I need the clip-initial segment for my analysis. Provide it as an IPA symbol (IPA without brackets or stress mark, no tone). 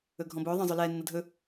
ɵ